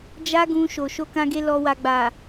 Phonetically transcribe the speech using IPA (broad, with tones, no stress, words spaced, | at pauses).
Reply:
d͡ʒa˦ɡũ˧ ʃo˨ ʃo˧kã˧ɡe˧ lɔ˨wa˨ɡ͡ba˨